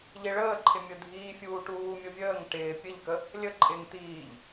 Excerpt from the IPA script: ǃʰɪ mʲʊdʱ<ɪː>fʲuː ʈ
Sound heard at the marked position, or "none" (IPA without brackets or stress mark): iː